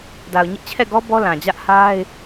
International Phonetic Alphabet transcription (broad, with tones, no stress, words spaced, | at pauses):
da˨ʊ̯ɲɪ˦ʔt͡ɕʰɛ˦˨ɡɔ˦ bɔ˦lã˨d͡ʑä˦ʔ ha˦ɪ̯